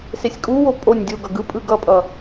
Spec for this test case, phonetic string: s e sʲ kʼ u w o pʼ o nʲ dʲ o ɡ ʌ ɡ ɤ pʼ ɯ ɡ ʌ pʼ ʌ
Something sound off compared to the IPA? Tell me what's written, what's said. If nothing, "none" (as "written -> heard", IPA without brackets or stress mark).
ɤ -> ɯ